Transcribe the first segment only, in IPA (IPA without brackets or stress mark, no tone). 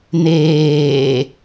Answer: n̪